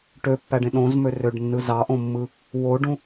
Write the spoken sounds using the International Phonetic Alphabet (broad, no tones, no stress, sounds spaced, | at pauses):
ʈ ø pː æ ɖ ẽ ɗ õ z m ø r ø ɖ nː ɯ z ɑ ʔ õ mː ɯ | w o ɖ ũ